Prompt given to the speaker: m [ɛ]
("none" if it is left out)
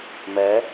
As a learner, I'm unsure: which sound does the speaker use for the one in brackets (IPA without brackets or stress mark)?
ɜ